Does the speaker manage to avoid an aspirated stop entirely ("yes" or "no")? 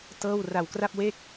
yes